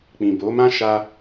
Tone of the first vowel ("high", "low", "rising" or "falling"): low